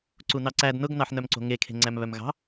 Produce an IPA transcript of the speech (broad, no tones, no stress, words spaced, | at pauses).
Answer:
ǀunɑǀæd nʊɡnɑħnœmǀo̤ ŋekʰe̤ ŋ͡ǀæmβœmɣɑ̤